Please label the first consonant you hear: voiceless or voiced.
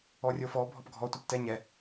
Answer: voiced